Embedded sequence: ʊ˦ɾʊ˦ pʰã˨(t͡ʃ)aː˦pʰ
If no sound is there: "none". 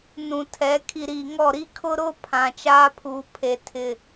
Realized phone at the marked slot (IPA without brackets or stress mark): t͡ʃ